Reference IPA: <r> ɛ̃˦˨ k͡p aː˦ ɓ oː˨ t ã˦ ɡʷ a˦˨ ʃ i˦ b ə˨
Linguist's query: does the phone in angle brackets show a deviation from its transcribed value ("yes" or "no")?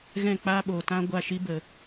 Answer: yes